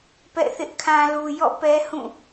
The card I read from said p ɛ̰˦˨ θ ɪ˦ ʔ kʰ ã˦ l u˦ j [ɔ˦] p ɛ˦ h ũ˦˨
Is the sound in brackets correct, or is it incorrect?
incorrect